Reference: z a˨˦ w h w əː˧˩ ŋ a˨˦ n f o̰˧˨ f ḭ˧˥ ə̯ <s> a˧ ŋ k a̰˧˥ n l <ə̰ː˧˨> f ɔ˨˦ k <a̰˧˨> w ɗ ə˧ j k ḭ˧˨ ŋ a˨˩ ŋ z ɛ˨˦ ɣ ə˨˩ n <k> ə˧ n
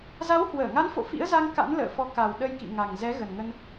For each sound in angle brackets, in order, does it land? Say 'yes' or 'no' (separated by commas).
no, yes, no, no